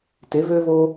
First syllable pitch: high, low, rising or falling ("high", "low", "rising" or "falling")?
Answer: rising